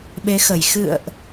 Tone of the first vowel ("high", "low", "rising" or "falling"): rising